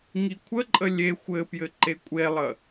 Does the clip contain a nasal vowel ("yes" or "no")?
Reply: no